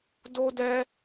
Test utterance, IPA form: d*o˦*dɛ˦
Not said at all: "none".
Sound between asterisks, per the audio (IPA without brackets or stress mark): o˦